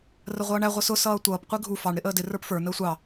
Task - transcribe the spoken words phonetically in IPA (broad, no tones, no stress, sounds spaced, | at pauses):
r ə ʁʷ ʌː ɳ æ ʁʷ ʌ s ʊ s ʌː tʷ ʌː p qʷ i ɡʱ u f ɑ ɳ ɾ ɪ ʔ əː d ɪ r ə˞ p f ə˞ n əː sʷ ɑ